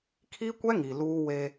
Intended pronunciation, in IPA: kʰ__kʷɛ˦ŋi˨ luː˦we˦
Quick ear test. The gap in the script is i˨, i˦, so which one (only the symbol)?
i˦